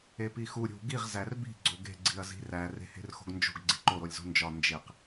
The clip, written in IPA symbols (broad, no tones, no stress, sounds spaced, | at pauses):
e p i x u ɾʲ ṳ ɡ i ʁ z æ r b i̤ ɡ͡ǀ o ɡ e̤ ɡ͡ǀ i ɐ̯ z i̤ r æ r e̤ h e̤ r x o̤ ɡ n d͡ʒ o̤ ɡ ɡ͡ǀ i ǃ o ɾ o lʲ z o̤ n d͡ʒ ɒ n d͡ʒ e q